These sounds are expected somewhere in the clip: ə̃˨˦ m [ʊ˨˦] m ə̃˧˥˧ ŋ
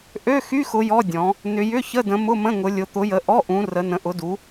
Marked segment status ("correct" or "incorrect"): incorrect